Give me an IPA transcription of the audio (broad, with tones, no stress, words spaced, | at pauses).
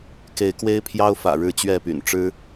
ke˨˦ɪ̯kwe˦ɪ̯pʰjɑ˦ʊ̯ fä̰˨˩ɻɻ̩˥˨t͡ɕɥɛ˥˨py̰˨˩n ʈ͡ʂɻ̩˦